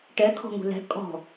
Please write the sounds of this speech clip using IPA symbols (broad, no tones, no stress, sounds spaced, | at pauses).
ʈ ɛ kʰ ɔ̤ ŋ ṳ l ɛ̤ kʼ ɔ̤